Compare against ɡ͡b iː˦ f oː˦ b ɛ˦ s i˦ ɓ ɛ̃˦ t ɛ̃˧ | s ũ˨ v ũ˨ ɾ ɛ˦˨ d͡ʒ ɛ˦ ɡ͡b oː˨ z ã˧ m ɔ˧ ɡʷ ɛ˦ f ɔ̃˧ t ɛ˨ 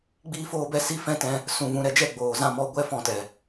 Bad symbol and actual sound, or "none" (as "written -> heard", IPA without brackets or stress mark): ɓ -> f